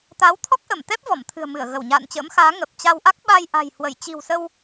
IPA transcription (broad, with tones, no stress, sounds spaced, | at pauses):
t̪ a˨˦ w t̪ʰ ɔ˦˥ k̚ ʔ ə˧˩ m t̪ ɛ˦˥ p̚ v ɔ˧˩ m t̪ʰ ɨ̤˨˩ ə̯ m ɨ˧˩ ə̯ ɣ ə˧˩ w ɲ a̰ː˧˨ n t͡ɕ ə̰ː˧˥ m x aː˨˦ ŋ ə˨˩ p̚ t͡ɕ a˧ w ʔ a˦˥ k̚ ɓ a˧ j ʔ a̤˨˩ j h w ə˧˩ j t͡ɕ i̤˨˩ w s ə˧ w